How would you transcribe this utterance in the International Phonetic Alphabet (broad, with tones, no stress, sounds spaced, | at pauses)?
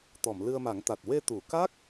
t̪ ɔ˨˩˨ m l ɨ˧ ə̯ m a˨˩˦ ŋ t̪ a˨˩ t̚ w e˧ t̪ u˨˩˨ k a˦˥ k̚